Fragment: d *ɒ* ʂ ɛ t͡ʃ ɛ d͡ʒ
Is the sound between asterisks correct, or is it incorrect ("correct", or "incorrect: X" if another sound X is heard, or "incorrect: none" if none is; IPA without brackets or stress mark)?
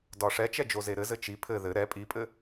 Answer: correct